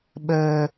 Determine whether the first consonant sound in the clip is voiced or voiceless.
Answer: voiced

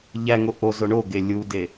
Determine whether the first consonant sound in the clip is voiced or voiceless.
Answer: voiced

